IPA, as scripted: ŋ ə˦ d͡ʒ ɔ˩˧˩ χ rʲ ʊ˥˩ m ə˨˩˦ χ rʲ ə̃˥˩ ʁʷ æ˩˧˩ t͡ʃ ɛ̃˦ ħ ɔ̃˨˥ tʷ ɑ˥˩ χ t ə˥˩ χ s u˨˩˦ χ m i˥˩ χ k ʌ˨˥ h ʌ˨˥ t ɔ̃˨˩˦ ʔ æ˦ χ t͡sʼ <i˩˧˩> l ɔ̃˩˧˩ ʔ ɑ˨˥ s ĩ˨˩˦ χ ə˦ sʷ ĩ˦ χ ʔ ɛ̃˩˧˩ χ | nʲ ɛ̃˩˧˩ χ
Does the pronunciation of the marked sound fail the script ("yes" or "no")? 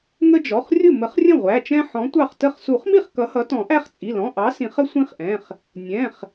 no